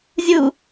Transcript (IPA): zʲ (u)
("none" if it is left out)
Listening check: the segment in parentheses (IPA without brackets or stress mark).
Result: u